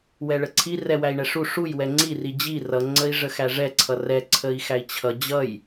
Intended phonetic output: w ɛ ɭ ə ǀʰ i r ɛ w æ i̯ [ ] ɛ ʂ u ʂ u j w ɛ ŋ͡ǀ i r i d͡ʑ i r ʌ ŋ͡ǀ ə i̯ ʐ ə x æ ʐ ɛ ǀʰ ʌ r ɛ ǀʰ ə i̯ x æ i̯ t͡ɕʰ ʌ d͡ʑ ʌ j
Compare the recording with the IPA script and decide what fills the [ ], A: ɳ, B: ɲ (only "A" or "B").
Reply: A